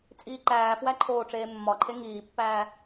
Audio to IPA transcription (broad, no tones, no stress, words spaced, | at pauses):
t͡sʼiːǃæːfwæ ǃʰoːʈ͡ʂeːmːɒǃʰe ŋiːpːæː